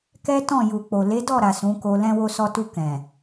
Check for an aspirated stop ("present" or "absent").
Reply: absent